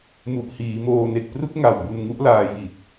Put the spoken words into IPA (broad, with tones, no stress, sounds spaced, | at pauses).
m u˨˩ ʔ h iː˩˦ m oː˧ n e˨˩ k̚ p r u˥˩ k̚ ŋ a˨˩ w b u˧ n ŋ u˦˥ ʔ l aː˧ j i˨˩ t̚